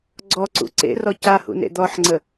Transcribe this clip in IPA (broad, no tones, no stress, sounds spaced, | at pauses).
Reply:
ɡ͡ǀ ɔ ǀ ṵ ǀ ḛ r ɔ c a h ṵ n ḛ d̪ ɔ ħ ŋ͡ǀ ə